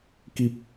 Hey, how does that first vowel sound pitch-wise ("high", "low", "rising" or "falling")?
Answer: low